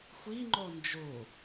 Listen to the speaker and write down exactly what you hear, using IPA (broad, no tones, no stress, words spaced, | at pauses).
xʷiŋ͡ǃɔ nd͡ʒo